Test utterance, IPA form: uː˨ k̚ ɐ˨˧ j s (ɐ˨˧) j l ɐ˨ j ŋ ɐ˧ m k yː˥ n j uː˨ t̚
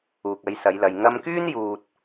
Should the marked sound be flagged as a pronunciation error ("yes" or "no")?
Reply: no